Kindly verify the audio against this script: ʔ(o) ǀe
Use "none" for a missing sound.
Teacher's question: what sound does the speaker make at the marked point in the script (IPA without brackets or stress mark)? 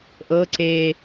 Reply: ɤ